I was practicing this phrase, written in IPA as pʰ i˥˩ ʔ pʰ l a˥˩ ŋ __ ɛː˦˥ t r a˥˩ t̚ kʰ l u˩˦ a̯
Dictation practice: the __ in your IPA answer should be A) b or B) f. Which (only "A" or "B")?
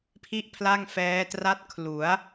B